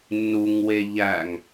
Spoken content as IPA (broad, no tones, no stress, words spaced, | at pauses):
nːuŋwe ʎæŋ